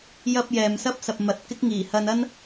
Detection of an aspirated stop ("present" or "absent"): absent